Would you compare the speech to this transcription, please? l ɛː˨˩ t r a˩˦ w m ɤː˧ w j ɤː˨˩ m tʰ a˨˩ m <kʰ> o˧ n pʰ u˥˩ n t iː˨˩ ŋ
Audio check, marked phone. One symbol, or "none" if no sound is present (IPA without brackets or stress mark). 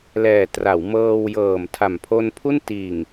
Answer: pʰ